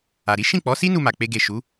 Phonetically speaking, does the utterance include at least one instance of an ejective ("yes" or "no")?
no